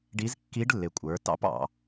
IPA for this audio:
ɖ i˧˥ z kː i˧˥ ɖ lː ɪ˩˧ kʷʼ ə˞˩˧ t ɑ̰˧˥ p ɑ̰˩˧

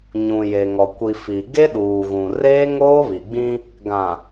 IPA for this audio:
ɲ ũ˨ j e˨ ŋ ɔ˨ kʷ i˨ f i˨ ɡ e˦ ɗ uː˨ ɣ ũ˨ r eː˦ ŋ oː˦ β i˨ ɡ͡b ĩ˦ | ɡ ã˨

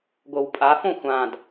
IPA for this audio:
ɡʷ ɤ w pʼ a f õ xʷ ã d

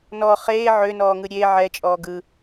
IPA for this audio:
n ɔ χ eː ʕ ø n ɔː ŋ ɯ ɾʲ e ʕ ɛ t͡ʃʼ ɔː ɡ ɯ

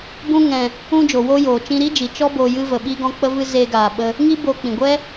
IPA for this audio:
b ũ˦ ŋ ɛ̃˧ | ũ˦ d͡ʒ o˨ w o˦ j oː˨ t͡ʃ ĩ˧ ɾ i˦ d͡ʒ i˨ t͡ʃ ɔ˦ b o˧ j ɨ˦ v ə˧ ɓ i˦ ɡ ɔ̃˦ k͡p ə˦ v ɨ˦ z eː˦ ɡ aː˧ ɓ ə˦ | ŋ i˦ b oː˧ k͡p ĩ˨ ɡʷ ɛ˦

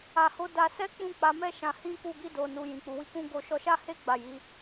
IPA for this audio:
a˧ h o˦ d a˧ s ɛ˦ k͡p ũ˦˨ k͡p a˨˦ m ɛ˦ ʃ ã˧ h ĩ˦ k u˦˨ ɡ i˧ d o˨ n u˨ j ĩ˨ k͡p u˨ w i˧ k ũ˦ ɡ o˧ ʃ ɔ˧ ʃ a˦ h e˦ ɡ͡b a˦˨ j i˨˦

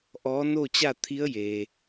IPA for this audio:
ʔ ɔː˧˥ n o˥˨ t͡ɕ a˥˨ t̪ʰ i˧˥ ə̯ j eː˩

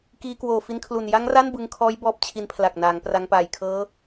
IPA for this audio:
k iː˧ k w oː˨˩ f i˧ n kʰ l u˨˩ n j a˦˥ ŋ r a˥˩ n b ɯ˧ ŋ kʰ ɔː˦˥ j b ɔː˦˥ p̚ t͡ɕʰ i˧ n pʰ l a˨˩ k̚ n aː˩˦ ŋ p r a˧ ŋ p aː˨˩ j kʰ ɤː˦˥

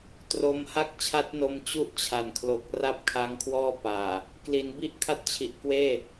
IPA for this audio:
t r o˧ m h a˥˩ k̚ t͡ɕʰ a˦˥ t̚ n o˧ m t͡ɕ u˥˩ ʔ t͡ɕʰ a˨˩ n kʰ l o˨˩ k̚ r a˥˩ p̚ kʰ a˦˥ ŋ kʰ w ɔː˥˩ p aː˨˩ | k l i˩˦ n b i˦˥ ʔ kʰ a˦˥ t̚ t͡ɕʰ i˨˩ ʔ k w eː˥˩

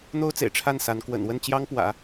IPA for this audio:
n̪ o˥ ʊ̯ t͡s ḛ˨˩ ɪ̯ ʈ͡ʂʰ a˥˩ n s a˧˥ n k w ə̰˨˩ n w ə˥˩ n t͡ɕ j ɑ˥ ŋ p w ä̰˨˩˦

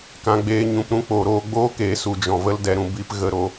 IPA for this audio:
k ã˨ ɡ͡b eː˧ ɲ ũ˨ p ɾ ũ˦ k͡p oː˨ ɾ oː˦ ɡ͡b oː˦ k eː˨ s u˨ d͡ʒ ɔ̃˨ v ə˦ l d ɛ˧ ɾ ũ˧ b i˧ p ɣ ə˧ ɾ o˧

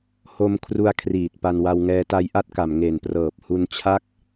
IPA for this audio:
h o˧ m kʰ r u˧ a̯ kʰ r iː˨˩ t̚ p a˧ n w a˧ w ŋ ɛː˧ t a˧ j ʔ a˦˥ t̚ k a˨˩ m ŋ e˨˩ n p r ɤː˨˩ p̚ h u˧ n t͡ɕʰ a˦˥ k̚

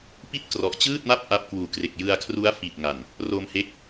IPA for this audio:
p i˥˩ t̚ k r ɔ˨˩ ʔ t͡ɕ ɯː˥˩ t̚ m a˥˩ p̚ ʔ a˦˥ p̚ k w uː˨˩ k r e˨˩ k̚ j ɯ˧ a̯ kʰ r u˦˥ a̯ f i˨˩ t̚ ŋ a˨˩ n | r o˧ m h e˦˥ k̚

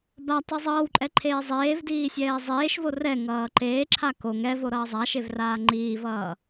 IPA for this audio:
b a tˤ i zˤ ʌː w ǃʼ ɛ ǃʰ eː zˤ eː v d iː sʲ ɛː zˤ eː ʃ v o r ɛ ŋ ʌː ǃ eː ǁʰ a k o ŋ ɛ v o ɾ ʌː zˤ a ʃ e v r aː ŋ͡ǃ iː v ʌː

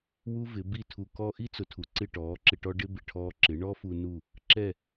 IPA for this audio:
w u˥ v ɪ˩˥ b i˥˩ tʰ u˧ k ɔ˥ ʔ i˥ t͡s ʊ˩˥ tʰ u˩ ǀ ɪ˥˩ ʈ ɔː˩˥ ǁ ɪ˧ ʈ ɔ˥ ɖ ɪ˥ b ɪ˩ ʈʰ ɔː˧ ǁ ɪ˩˥ ɳ ɔ˥ f u˧ n u˥˩ | ǁ ɛ˥˩

